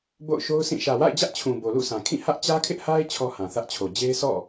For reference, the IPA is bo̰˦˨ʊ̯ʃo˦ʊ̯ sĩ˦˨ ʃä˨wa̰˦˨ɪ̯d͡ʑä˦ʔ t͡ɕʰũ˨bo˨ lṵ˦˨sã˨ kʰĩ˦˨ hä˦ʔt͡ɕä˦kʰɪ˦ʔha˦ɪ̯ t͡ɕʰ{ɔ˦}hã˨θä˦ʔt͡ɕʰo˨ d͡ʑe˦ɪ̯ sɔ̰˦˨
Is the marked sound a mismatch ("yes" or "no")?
no